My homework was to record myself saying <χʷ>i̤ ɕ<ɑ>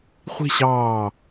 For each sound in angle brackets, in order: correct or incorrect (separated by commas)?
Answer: correct, incorrect